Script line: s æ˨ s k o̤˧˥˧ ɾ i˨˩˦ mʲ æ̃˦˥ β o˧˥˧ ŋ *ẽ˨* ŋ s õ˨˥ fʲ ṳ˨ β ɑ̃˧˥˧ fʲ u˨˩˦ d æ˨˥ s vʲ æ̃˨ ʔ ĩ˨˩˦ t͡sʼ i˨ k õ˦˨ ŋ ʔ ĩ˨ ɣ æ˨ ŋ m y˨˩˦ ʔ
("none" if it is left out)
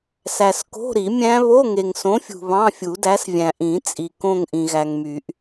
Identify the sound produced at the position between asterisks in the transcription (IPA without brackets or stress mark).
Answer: e˨